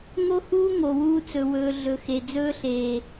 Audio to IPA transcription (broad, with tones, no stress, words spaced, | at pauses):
ŋo˦huː˦ ŋo˨wuː˦t͡sɵ˨ wɵː˨ ɮɵ˨xe˨ d͡zɵː˦ɬeː˨